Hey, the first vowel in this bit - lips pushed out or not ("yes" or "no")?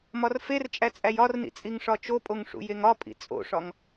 yes